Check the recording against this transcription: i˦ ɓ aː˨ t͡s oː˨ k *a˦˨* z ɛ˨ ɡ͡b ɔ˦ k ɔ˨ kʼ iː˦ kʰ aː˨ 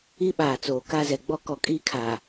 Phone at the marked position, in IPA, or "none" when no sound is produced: a˦˨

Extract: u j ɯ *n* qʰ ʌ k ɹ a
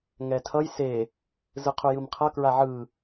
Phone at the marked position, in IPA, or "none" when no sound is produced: m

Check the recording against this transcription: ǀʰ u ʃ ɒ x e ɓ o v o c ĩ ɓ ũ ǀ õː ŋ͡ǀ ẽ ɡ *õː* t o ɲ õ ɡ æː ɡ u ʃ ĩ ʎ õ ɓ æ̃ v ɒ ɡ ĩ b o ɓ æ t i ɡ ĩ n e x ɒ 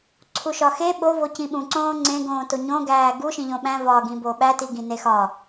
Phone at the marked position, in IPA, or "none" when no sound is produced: õː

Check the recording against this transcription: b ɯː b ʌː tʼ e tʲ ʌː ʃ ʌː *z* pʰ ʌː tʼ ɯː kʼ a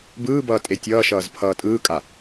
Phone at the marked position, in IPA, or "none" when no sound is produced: z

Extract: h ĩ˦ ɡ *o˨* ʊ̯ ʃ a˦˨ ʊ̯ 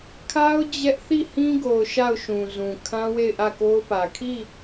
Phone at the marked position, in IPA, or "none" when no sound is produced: o˨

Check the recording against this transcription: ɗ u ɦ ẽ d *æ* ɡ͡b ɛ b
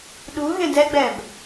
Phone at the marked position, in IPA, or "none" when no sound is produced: ɛ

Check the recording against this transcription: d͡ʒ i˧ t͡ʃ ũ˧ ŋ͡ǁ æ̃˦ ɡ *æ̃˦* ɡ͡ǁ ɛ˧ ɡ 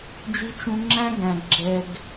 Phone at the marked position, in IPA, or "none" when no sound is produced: æ̃˨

